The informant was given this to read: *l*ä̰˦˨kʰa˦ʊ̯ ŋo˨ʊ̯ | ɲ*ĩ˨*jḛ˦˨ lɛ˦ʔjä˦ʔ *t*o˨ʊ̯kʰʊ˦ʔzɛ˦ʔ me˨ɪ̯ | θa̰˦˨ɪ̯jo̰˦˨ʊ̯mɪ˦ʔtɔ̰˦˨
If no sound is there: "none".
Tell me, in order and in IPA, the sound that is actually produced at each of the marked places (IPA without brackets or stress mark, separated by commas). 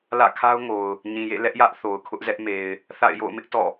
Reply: l, ĩ˨, θ